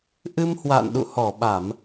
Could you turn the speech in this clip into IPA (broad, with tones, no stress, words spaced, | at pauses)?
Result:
ʔɨ˧mhwa̰ː˧˨n ɗṵ˧˨hɔ˧˩ɓa˧˩˨m